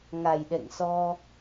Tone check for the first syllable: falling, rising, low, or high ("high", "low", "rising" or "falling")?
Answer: low